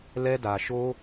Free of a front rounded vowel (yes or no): yes